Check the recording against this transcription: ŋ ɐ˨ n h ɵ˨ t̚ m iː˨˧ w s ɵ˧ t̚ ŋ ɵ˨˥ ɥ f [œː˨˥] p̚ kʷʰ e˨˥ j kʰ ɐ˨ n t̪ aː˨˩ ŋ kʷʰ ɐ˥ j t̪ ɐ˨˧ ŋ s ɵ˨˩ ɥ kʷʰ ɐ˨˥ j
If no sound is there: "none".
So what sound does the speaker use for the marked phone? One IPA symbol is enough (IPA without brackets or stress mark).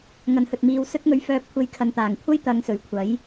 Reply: œː˨˥